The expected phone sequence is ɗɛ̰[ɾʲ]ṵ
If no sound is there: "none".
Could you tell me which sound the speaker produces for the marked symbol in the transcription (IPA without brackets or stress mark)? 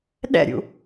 ɾʲ